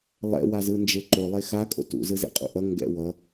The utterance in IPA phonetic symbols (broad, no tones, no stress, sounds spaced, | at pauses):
lˠ ɛ̰ w a z ɯ n d͡ʒ e ǃ o lˠ e x a kʼ o̰ t ṵ z ɯ z ḛ qʼ ṵ ʔ ʌ ŋ ɡ ɛ̰ w ʌ